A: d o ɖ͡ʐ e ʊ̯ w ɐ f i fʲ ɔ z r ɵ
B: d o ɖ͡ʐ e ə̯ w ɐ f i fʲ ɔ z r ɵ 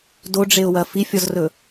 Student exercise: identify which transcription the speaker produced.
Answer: A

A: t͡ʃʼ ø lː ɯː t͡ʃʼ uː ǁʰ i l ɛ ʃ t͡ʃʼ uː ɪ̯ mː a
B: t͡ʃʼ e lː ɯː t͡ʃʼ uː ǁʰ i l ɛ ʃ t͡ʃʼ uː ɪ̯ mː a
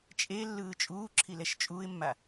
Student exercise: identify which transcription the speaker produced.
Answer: B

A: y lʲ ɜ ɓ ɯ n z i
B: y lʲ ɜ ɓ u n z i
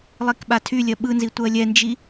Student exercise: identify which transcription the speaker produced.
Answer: A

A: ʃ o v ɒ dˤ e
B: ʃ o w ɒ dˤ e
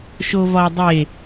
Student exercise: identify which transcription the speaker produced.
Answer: A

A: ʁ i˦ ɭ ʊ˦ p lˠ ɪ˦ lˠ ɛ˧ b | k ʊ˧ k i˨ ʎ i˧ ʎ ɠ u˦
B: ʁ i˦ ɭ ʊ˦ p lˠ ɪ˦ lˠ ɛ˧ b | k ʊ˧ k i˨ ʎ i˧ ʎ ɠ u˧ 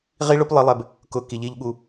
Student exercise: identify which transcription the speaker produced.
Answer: B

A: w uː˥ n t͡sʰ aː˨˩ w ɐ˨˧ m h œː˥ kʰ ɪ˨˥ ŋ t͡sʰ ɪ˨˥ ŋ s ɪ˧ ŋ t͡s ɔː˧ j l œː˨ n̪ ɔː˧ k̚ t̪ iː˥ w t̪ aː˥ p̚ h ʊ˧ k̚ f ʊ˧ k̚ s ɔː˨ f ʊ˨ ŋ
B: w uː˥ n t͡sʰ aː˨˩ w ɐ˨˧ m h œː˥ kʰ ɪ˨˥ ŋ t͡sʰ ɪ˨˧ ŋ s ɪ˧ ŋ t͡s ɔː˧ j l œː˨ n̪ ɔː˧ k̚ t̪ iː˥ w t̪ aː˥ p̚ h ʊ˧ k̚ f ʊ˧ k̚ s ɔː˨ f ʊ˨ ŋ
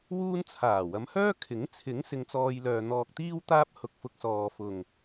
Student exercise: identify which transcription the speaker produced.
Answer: A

